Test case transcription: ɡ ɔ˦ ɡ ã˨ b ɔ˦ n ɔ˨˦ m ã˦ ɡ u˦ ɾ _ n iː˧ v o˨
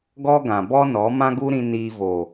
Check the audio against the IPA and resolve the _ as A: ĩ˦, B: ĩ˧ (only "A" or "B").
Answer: B